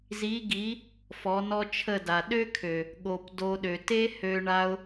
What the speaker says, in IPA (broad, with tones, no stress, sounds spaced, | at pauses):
z i˨˦ ɡ i˨˦ | f ɔ˨˦ n ɔ˦ t͡ʃʰ ə˦˨ d a˨ ɗ ø˦ kʰ ø˨ | ɠ o˨ p d o˧ ɗ ø˨ t e˦ h ø˧ ɳ a˦ ʊ̯